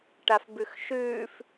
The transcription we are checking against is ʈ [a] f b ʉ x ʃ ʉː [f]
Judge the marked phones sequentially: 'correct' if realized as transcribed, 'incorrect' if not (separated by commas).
correct, correct